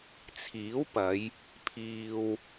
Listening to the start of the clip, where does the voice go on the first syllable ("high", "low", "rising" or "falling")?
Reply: rising